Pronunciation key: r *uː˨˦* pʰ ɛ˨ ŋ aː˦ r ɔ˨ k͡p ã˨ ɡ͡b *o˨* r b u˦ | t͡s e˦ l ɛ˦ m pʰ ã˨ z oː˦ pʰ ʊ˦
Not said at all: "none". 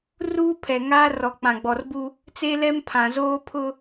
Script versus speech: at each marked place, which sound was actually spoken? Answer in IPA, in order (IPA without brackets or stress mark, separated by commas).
uː˦, ɔ˨